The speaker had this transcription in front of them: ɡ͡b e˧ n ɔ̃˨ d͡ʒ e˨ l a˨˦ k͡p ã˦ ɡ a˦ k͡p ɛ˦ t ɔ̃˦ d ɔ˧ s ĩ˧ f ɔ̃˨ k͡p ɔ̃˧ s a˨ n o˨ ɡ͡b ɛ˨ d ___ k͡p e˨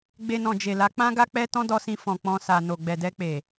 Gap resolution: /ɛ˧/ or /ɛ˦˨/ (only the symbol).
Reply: ɛ˧